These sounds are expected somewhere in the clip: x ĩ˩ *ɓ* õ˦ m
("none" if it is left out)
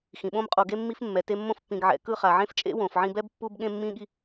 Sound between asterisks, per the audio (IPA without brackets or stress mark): ɓ